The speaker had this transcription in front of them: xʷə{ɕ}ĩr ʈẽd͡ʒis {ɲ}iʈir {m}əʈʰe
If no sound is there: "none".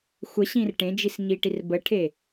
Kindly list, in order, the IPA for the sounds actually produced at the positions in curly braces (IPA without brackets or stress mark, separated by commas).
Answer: ɕ, ɲ, b